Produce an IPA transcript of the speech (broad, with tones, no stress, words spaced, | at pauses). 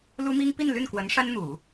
lu˥mi˥ŋ pi˥˧n ly˥˩nkwə˧˥n ʂa˥nn̪u˨˩˦